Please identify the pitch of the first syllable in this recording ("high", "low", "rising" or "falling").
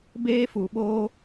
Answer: high